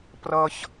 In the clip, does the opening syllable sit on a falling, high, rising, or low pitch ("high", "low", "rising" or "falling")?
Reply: high